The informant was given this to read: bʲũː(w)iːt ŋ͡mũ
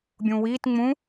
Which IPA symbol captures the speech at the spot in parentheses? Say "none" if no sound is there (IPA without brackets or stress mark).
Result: w